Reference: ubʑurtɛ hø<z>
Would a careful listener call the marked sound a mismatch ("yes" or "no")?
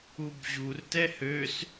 yes